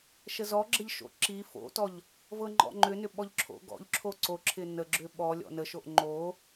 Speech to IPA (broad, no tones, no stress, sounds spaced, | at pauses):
ʃ ə z ɔ ɡ͡ǁ ə ʎ ʃ o̰ ǁ i f o̰ t ɔ ʎ | v ɤ ŋ͡ǃ ɔ̰ ŋ͡ǃ ʏ n ʏ ɓ ɔ ʎ ǁʰ o̰ ɡ ɔ̰ ʎ ǁʰ o ǀ o ǁʰ ɪ n ə ɡ͡ǁ ʏ ɓ ɔ lʲ ɔ̰ n ə ʃ o ʔ ŋ͡ǃ o